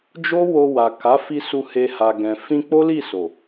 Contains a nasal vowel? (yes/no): yes